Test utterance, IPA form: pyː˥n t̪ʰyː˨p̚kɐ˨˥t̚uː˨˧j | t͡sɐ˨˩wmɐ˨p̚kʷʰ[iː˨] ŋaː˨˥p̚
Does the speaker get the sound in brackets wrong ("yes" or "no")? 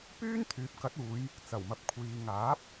no